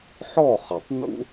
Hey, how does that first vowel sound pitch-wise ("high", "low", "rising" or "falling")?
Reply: falling